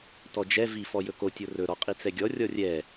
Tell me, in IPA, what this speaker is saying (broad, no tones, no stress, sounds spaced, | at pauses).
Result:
t ɔ d͡ʒ ɛ v i f ɔ j ɵ k o tʲ o r ɵ ɾ ɔ qʼ i t͡s ɛ ɡʲ ɔ rʲ ɔ rʲ ɛ